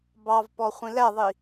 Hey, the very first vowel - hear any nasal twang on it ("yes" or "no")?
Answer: no